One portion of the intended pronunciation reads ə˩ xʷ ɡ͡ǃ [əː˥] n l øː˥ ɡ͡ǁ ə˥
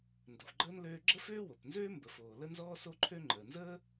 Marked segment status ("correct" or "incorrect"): correct